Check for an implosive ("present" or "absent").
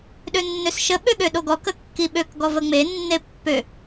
present